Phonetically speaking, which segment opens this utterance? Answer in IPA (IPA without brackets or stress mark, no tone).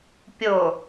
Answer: pʲ